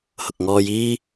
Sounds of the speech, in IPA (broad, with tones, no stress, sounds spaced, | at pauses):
h ʊ˨ k̚ ŋ ɔː˧ j iː˥